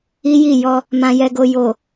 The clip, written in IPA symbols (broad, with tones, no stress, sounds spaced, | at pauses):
i˦ j i˦˨ j ɔ˧ | m ã˧ j ɛ˧ ɡ o˧ j o˨